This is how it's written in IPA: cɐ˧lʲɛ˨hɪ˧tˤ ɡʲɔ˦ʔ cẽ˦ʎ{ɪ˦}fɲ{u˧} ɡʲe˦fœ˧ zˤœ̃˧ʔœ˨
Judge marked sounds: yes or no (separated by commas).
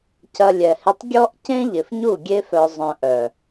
no, no